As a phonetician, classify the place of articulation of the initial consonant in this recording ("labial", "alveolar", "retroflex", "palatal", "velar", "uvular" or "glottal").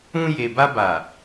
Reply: palatal